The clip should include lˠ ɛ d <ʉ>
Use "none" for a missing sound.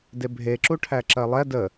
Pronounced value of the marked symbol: ə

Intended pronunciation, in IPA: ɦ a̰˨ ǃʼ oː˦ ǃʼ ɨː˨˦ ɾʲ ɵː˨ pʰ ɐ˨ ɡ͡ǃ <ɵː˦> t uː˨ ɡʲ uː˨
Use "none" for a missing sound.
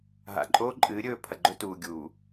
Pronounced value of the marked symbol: ɵ˦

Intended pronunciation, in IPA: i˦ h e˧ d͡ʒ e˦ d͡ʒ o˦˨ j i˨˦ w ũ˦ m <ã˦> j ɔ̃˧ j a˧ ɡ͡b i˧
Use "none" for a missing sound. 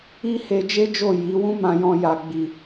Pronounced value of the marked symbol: ã˧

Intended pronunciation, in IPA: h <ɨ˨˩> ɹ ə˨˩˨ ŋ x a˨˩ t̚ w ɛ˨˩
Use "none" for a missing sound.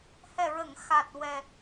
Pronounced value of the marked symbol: ɛ˨˩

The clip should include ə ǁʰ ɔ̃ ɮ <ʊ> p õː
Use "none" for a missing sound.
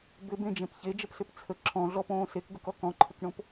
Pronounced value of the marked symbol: ɔ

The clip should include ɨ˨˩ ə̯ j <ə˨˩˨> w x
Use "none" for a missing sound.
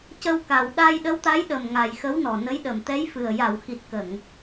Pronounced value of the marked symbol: a˨˩˨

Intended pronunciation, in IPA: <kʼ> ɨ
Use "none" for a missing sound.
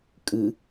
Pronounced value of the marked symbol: kʼ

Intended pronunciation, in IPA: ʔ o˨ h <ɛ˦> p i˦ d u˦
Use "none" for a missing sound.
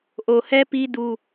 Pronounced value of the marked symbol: ɛ˦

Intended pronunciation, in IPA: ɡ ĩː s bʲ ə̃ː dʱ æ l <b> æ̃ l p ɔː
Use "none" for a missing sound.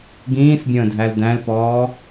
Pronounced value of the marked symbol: d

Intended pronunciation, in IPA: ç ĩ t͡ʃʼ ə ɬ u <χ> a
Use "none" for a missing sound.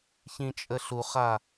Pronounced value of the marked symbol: χ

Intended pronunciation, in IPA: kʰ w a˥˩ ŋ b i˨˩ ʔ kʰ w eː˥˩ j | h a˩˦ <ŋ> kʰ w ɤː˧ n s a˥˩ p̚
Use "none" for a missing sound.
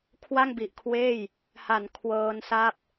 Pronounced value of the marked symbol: n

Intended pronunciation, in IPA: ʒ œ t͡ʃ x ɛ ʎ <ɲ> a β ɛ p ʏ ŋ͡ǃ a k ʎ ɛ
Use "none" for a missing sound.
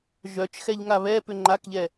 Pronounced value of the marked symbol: ŋ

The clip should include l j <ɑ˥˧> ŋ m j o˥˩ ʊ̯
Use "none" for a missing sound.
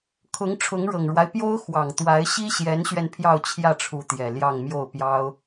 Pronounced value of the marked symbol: ɑ˥˧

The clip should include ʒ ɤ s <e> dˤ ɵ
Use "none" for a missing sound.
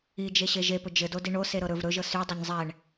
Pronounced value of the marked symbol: y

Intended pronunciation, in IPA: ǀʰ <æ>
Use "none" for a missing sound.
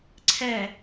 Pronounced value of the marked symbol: ɛ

